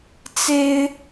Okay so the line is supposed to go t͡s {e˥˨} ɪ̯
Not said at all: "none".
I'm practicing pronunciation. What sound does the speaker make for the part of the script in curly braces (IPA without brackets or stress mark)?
e˦